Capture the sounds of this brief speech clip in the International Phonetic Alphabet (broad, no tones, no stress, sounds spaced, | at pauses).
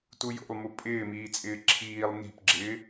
t u j o̰ lˠ m u pʼ ɪː m iː t͡sʼ ɪː ǁʰ iː lˠ n i̤ p ɡ͡ǁ ɪː